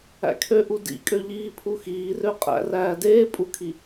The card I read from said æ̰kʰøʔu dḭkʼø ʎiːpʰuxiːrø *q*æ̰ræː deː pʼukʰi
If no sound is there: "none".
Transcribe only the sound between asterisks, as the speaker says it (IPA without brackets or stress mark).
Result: qʼ